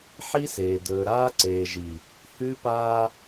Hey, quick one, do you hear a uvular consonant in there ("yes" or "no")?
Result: no